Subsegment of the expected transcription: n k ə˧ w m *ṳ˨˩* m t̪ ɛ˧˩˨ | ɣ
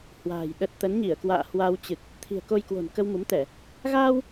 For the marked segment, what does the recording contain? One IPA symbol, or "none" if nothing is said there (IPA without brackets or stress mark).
u˨˦